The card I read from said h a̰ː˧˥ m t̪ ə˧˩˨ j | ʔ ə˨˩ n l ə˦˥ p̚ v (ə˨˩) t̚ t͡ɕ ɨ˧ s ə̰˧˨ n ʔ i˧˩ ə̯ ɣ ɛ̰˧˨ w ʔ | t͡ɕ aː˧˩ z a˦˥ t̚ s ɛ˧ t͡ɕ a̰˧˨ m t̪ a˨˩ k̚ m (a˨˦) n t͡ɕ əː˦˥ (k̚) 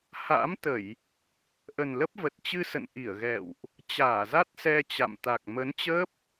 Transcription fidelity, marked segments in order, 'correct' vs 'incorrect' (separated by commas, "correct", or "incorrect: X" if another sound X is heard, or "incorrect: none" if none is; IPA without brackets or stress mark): correct, incorrect: ə˨˦, incorrect: p̚